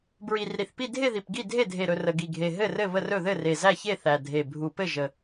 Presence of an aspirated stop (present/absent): absent